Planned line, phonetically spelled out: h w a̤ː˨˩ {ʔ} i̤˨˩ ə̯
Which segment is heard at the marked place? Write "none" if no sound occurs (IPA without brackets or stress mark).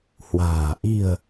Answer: ʔ